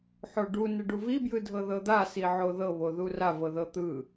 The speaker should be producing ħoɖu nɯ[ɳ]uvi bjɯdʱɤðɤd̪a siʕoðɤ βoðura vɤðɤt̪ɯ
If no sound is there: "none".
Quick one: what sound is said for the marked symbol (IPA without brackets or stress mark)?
ɖ